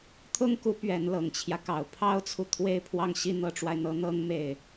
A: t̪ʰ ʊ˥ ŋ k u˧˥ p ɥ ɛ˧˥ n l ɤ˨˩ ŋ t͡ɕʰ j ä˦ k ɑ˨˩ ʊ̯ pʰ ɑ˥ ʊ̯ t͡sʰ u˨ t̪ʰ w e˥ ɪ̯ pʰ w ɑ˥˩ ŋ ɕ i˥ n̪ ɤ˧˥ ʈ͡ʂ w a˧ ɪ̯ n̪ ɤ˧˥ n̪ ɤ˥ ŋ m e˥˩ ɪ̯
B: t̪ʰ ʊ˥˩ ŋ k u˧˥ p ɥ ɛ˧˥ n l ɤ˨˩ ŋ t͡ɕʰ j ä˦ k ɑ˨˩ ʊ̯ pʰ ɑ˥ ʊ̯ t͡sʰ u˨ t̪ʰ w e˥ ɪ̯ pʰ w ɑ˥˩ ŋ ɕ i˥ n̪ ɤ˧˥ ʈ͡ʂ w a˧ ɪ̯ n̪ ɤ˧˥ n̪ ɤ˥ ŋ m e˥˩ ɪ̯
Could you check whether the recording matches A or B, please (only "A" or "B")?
A